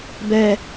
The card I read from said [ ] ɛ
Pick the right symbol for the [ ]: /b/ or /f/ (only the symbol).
b